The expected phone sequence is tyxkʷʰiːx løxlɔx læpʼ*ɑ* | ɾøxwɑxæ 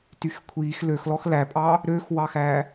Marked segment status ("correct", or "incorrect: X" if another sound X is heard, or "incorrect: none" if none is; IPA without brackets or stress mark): correct